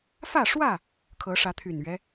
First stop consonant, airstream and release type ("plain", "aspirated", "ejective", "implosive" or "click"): aspirated